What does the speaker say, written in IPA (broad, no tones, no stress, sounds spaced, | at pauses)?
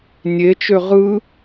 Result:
nʲ e t͡ʃ ø ʁ ɯ